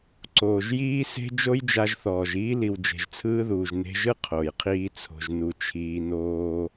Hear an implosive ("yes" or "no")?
no